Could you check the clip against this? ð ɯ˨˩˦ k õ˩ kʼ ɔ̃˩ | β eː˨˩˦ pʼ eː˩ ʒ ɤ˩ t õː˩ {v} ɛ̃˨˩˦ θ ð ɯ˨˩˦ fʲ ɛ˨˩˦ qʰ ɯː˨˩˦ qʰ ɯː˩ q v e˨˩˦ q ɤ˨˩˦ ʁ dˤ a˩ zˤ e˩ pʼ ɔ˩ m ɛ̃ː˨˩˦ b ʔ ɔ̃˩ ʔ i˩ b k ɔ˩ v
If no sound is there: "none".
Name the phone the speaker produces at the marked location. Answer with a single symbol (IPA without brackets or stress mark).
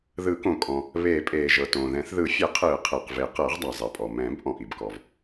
ð